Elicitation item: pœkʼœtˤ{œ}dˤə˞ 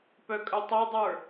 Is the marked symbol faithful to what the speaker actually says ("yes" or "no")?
yes